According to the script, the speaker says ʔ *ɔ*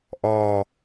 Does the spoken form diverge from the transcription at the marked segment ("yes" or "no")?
no